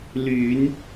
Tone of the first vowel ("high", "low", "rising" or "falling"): rising